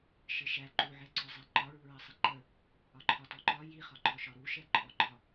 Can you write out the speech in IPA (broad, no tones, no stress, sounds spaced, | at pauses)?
ʃ ɪ ʃ æ ǃ u ʕ ɛ ǀ ɔ zˤ ɛ ǃ ɒ ɹ u ɹ ɜ sˤ ɪ ǃ ə | ɒ ǃʰ ɒ t ɔ ǃ ɒ j i χ ɒ ǃ ɔ ʃ ɒ ɾ u ʃ ɛ ǃʼ ɔ ɡ͡ǃ ɒ